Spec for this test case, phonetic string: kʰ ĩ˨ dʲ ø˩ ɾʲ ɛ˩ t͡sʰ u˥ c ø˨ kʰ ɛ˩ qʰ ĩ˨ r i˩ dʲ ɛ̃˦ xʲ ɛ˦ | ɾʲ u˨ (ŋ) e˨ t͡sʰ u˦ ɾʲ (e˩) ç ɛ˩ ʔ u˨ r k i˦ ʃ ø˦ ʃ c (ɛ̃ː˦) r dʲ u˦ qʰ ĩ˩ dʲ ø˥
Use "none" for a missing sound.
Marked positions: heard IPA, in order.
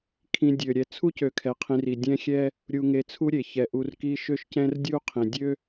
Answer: ŋ, e˩, ɛ̃˦

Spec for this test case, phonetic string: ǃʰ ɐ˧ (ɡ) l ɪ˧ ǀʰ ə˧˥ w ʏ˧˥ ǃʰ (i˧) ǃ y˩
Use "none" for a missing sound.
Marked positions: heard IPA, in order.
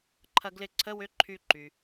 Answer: ɡ, y˧

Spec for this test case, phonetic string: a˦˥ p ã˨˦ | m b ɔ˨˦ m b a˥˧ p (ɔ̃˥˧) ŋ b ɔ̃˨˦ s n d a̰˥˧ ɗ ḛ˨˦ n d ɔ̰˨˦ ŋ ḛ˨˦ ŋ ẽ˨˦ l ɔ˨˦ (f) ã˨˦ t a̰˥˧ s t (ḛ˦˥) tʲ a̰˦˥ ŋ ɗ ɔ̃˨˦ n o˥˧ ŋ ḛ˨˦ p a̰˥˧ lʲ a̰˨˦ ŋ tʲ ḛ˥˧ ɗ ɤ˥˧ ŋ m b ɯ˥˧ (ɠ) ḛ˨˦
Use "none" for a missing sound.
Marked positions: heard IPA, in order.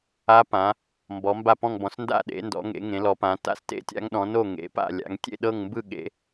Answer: ɔ̃˥˧, p, ḛ˦˥, ɠ

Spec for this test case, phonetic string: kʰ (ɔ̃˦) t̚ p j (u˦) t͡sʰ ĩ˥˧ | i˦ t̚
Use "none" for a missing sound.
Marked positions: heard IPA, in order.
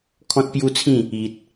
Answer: ɔ̃˦, u˦

